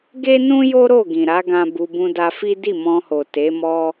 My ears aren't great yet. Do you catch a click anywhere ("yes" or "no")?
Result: no